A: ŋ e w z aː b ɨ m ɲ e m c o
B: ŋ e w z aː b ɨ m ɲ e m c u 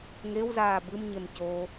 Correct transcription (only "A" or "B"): A